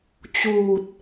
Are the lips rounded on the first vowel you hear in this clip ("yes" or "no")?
yes